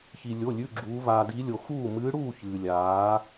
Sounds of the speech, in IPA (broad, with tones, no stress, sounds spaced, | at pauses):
ç i˧ lʲ o˧˥˧ lʲ ʉ˧˥˧ ɡ͡ǁ uː˧˥ v aː˧ d i˧˥ lʲ o˧ x uː˥˨ m ɨː˧˥ ɽ uː˥˨ ç ɨː˧ lʲ aː˧˥